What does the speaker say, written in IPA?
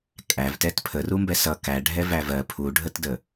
kʼ æ v t ɛ t pʰ ə r u m b ɛ s ʌ k æ ɖʱ ɛ v æ v ɜ pʰ u ɖʱ ə t d ə

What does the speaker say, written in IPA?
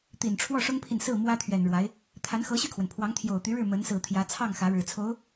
t̪ i˨˩ n ʈ͡ʂʰ w ɔ˥˩ ʂ ʊ˥ ŋ pʰ i˨ n s ɹ̩˥˩ m w ä˥ t̪ʰ ɥ ɛ˨˩ n ɻ w a˧˥ ɪ̯ | t̪ʰ a˧˥ n x ɤ˧˥ ɕ y˥˩ kʰ w ə˩ n pʰ w ɑ˧˥ ŋ t̪ʰ j o˨˩ ʊ̯ t̪ y˧˥ ɻ ɻ̩˥˩ m ə˧˥ n s ɹ̩˨˩ t̪ʰ j ä˧˥ t͡sʰ ɑ˥˩ ŋ x ä˧˥ ɻ ɻ̩˨˩ t͡sʰ o˧˥ ʊ̯

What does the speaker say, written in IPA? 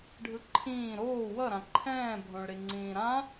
ɖʱ ɯ ǃʰ ĩː ɾ oː w ʌ ɾ ã ǃʰ ɛ̃ː bʱ õ ɭ ɾ i ŋ͡ǀ ĩː ɾ ã

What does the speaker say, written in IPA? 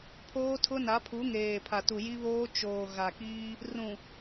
pʰ oː˦ tʰ ʊ˦ n a˨˦ pʰ u˨˦ ŋ eː˨ pʰ a˨ t u˨ j i˦ β oː˦ t͡ʃ oː˨ ɣ a˨ k iː˦ | r ũ˨

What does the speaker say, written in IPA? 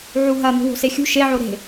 ʕ u ɦ ɐ n̪ ṳ w o̤ s e xʲ ṳ ʃ e ʕ o ɾ e̤

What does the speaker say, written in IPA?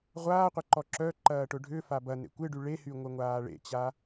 ʁʷ aː qʷ ə ǃ ɔ ǁ œ ǃ ɐː ʈ ʊ ɖʱ ʏ f a b ɐ n ḛ kʷ ɪ ɖ y ɭ e h y ŋʷ ə ŋʷ aː ɭ ḛ t͡ɕ a

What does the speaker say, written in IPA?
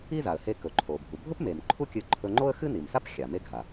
i˥ z a˩ ə̯ h e˧ k ɵ˩ ǃʰ o˩ bʱ u˩ bʱ ɵ˥ p m e˩ m ǃʰ u˥ kʲ ɨ˧ ǃʰ ɵ˧ ŋ͡ǃ o˥ ə̯ x ɨ˥ n i˩ m s a˥ p xʲ a˩ m e˥ ɡʱ a˩

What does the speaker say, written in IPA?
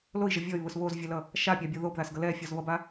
l o i̯ ʒ ʌ vʲ ɔ y̯ β ʊ s β o z vʲ ɛ l ʌ | ʃ a pʲ a bʲ o ð o b ð a s ɡ ʌ l ɛ fʲ ɔ z β ʌ b a

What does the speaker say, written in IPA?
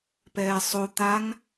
p ɛː sˤ o t̪ a ŋ

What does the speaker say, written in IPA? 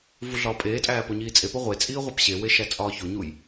v u ɮ ɒː pʼ eː tʼ æː p o ɲ iː t͡sʼ e p o ʁʷ e t͡sʼ iː ʁʷ æ p ɕ e w e ʃ æ t͡sʼ ɒː ç o ɲ u j

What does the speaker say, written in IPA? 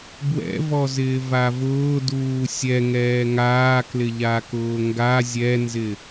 b w ɛ̰ v ɔ z ɪː v a v ʊː d uː sʲ ɛ ŋ ɛː ŋ aː k l ɪ ʎ a k ʊː ŋ ɡ a zʲ ɛ n z ɪ

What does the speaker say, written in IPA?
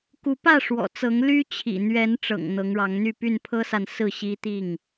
k u˨˦ p ä˥˨ ʂ w ɔ̰˨˩ t͡s ɤ˨˦ ŋ l y˦ t͡ɕʰ ḭ˨˩ n̪ ɥ ɛ˨˦ n ʈ͡ʂ ɤ̰˨˩ ŋ n̪ ɤ˨˦ ŋ ɻ ɑ˨˦ ŋ n̪ y˥˨ p y˥˨ n pʰ ɤ˦ s a˨ n s ɹ̩˥˨ ɕ i˦ t̪ i˥˨ ŋ

